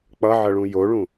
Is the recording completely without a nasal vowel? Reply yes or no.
no